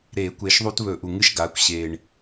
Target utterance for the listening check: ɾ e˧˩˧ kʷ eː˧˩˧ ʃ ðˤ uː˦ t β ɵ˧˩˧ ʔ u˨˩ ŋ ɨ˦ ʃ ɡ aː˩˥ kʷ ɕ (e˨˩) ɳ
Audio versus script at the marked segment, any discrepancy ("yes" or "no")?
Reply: yes